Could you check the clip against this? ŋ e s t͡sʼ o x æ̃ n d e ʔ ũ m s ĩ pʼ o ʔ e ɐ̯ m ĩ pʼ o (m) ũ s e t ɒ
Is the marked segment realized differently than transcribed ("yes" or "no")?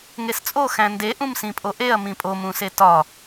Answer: no